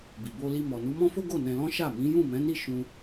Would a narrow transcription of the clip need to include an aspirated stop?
no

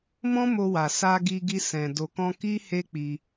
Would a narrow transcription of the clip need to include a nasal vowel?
yes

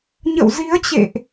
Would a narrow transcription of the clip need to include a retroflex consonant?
no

